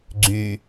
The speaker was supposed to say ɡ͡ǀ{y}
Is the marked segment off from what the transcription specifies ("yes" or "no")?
no